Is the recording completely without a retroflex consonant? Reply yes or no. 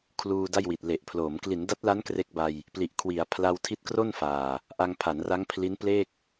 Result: yes